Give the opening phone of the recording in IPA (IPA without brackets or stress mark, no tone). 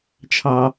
t͡ʃʰ